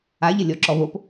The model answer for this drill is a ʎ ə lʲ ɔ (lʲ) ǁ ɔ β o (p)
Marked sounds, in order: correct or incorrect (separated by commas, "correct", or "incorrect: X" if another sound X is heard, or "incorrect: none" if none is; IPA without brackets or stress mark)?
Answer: incorrect: none, correct